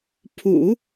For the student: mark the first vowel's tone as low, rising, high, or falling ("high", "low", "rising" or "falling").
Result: low